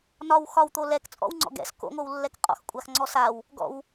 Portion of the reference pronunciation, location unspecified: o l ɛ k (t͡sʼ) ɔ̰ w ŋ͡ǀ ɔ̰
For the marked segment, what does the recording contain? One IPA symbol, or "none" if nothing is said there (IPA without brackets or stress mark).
t͡sʼ